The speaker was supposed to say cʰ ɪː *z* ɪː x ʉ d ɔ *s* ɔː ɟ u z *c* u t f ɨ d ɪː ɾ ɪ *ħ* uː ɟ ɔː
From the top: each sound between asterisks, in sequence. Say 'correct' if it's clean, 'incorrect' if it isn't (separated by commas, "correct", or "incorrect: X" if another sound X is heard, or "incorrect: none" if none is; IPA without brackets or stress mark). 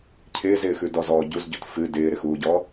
correct, incorrect: z, incorrect: ɟ, incorrect: x